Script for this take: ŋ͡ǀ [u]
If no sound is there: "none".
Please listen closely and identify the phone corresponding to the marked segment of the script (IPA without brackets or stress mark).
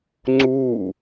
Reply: u